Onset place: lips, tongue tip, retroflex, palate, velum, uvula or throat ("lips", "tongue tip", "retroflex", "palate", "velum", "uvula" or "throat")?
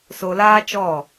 tongue tip